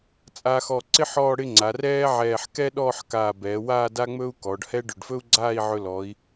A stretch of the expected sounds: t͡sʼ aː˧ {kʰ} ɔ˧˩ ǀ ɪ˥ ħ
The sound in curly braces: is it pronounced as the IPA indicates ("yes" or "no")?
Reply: no